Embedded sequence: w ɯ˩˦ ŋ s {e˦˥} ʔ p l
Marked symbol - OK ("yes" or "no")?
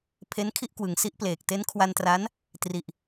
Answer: no